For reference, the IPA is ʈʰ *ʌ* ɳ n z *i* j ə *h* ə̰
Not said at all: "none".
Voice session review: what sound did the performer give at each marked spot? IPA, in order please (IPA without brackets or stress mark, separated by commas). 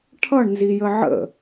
ʌ, i, ʕ